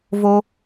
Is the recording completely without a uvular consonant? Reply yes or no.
yes